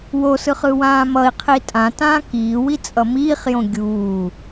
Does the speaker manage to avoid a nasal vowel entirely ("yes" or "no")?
no